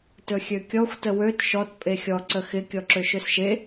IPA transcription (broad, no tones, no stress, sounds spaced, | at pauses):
t ɵ xʲ ø kʲ ɔ xʷ t ə w ø t ʃ ɔ t pʼ e xʲ ɔ ǀ ə x ɪ kʲ ɔ ǁ ø ʃ ø s ʃ e